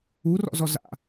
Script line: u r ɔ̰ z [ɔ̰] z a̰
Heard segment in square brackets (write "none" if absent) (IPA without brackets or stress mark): ɔ